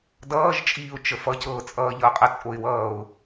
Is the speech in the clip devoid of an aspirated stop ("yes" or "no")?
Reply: yes